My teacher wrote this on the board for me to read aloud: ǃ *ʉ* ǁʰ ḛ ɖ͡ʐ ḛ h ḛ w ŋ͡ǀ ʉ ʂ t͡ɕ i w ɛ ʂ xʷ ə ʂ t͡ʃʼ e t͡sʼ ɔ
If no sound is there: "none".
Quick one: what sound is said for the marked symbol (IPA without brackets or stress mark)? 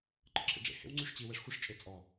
ə